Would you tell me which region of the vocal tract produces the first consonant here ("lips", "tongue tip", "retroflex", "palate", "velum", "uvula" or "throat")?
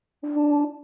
lips